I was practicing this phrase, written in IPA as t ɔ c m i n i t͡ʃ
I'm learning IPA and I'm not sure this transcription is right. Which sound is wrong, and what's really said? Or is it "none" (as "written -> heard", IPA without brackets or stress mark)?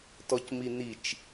none